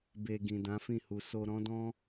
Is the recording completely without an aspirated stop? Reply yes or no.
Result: yes